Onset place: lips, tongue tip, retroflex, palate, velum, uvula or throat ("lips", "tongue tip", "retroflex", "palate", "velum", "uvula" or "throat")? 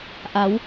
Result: throat